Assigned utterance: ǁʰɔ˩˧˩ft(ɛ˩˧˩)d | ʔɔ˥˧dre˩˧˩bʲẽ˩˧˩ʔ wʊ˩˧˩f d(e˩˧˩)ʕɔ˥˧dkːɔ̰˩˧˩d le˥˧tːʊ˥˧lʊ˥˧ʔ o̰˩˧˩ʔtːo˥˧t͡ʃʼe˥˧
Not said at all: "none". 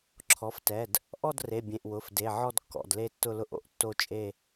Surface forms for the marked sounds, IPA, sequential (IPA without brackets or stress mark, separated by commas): ɛ˩˧˩, e˩˧˩